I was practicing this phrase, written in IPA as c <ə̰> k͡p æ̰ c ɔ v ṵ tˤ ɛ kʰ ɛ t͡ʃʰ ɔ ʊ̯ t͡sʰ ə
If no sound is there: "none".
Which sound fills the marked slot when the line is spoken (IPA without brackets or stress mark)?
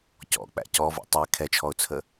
ɔ̰